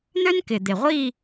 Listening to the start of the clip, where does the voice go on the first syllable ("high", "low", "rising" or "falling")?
high